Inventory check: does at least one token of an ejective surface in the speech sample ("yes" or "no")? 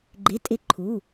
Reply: yes